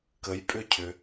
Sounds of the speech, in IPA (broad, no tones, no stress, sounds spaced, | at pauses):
k ə j pʼ ʏ cʰ ʏ